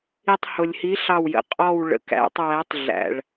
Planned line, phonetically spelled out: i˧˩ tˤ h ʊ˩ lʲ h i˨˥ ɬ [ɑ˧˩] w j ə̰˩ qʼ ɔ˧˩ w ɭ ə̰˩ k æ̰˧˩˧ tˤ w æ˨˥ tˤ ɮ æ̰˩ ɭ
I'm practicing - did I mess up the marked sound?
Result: no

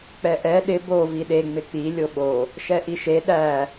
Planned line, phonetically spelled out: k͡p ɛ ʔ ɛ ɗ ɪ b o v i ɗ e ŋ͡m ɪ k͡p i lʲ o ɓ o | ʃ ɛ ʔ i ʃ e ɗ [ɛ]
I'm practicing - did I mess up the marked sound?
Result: yes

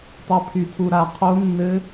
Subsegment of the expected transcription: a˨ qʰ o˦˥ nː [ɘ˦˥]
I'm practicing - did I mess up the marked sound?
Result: no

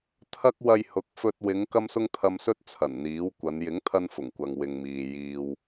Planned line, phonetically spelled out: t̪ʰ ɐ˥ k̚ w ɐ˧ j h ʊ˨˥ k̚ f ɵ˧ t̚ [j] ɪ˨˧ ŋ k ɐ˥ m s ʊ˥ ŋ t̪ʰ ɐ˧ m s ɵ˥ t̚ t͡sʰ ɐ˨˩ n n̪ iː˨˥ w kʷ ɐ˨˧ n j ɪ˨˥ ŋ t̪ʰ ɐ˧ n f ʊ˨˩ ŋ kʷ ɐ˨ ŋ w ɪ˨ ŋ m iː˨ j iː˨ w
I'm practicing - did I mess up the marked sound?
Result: yes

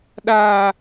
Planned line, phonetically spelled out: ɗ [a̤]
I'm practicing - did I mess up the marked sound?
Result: yes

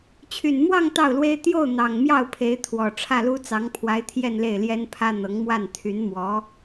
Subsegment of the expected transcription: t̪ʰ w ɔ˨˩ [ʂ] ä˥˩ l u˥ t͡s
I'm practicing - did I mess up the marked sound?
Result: yes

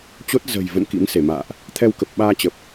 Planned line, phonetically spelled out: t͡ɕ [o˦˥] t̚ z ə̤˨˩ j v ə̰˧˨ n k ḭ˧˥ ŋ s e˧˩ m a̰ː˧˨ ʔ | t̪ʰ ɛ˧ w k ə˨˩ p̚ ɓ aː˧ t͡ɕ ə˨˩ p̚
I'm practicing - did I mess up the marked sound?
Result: no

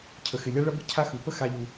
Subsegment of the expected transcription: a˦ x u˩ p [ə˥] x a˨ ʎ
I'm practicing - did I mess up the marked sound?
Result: no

